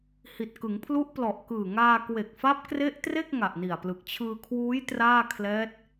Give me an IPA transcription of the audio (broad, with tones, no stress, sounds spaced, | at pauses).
h i˨˩ t̚ k ɯ˩˦ ŋ pʰ l u˦˥ ʔ p l ɔ˨˩ ʔ k ɯː˨˩ ŋ aː˧ k w e˨˩ k̚ f a˦˥ p̚ k r e˦˥ ʔ t r e˥˩ k̚ ŋ a˨˩ ʔ n i˨˩ a̯ p l ɯ˨˩ k̚ t͡ɕʰ ɯː˧ kʰ w uː˦˥ j t r aː˥˩ kʰ l ɛː˦˥ t̚